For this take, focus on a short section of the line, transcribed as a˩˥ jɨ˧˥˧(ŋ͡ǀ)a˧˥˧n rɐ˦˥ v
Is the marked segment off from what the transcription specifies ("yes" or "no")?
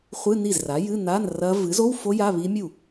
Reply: yes